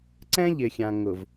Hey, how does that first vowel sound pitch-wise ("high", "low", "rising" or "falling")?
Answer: high